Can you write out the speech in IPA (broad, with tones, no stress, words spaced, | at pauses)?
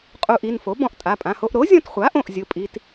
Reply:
qʼu˧ʔi˩˧˩n fo˩˥ bɔ̃˧ʔtʼa˩˧˩pʼã˩˧˩ho˧ʔ ɾo˩˥zʲɔ̃˧tχʷa˩˥ʔõ˩˧˩ʔ zʲʊ˩˧˩pʼi˩˧˩t